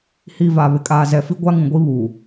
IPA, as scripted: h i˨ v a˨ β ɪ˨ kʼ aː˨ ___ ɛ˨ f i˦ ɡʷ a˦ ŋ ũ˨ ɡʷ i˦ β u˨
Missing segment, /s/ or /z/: z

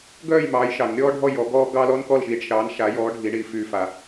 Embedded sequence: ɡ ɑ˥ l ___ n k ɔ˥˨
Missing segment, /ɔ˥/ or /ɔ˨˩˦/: ɔ˥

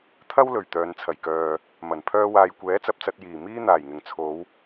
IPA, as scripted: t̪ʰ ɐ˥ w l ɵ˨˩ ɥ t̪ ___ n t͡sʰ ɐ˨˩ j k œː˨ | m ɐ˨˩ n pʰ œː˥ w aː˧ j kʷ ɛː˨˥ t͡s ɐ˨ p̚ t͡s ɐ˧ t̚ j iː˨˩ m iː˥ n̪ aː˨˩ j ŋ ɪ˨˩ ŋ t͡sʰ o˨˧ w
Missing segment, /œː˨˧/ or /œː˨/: œː˨˧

